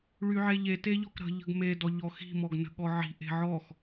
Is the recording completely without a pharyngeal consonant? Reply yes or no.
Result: no